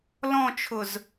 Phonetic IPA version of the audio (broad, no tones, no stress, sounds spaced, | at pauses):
l ɔ̃ t͡ʃʰ ʊ z